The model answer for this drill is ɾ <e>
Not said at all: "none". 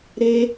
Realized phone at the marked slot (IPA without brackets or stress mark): e